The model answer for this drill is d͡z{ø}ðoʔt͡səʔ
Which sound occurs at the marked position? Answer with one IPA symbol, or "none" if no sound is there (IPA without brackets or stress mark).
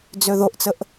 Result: ø